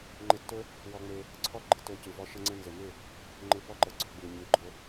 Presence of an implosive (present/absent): absent